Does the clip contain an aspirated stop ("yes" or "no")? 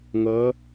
no